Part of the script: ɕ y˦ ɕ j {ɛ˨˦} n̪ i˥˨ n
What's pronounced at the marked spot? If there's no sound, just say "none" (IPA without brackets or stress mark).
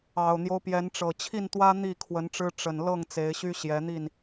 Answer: ɛ˨˦